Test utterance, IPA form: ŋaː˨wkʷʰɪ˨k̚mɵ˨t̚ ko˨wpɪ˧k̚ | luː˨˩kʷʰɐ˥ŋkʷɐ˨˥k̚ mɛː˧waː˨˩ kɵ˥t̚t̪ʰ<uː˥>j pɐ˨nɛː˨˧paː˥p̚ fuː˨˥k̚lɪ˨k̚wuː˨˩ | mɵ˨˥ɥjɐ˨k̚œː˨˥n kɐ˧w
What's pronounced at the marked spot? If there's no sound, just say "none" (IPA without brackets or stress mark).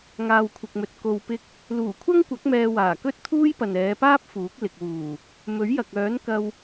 uː˥